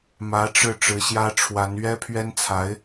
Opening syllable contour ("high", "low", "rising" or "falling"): rising